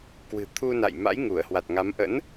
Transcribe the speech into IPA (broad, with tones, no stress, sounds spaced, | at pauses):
k w ɨ̤˨˩ t̪ʰ u˧ n a̰˧˨ j m a̰˧˥ j ŋ u˧˩ ə̯ h w a˨˩ t̚ ŋ a˨˦ m ʔ ə̰˧˥ n